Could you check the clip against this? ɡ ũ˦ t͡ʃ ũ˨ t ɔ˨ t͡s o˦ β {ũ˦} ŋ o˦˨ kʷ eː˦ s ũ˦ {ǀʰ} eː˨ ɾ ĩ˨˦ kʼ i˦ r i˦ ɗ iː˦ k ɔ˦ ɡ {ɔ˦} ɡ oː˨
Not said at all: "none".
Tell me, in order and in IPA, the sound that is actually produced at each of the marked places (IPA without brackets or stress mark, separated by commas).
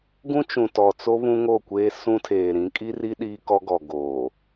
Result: ũ˦, tʰ, ɔ˨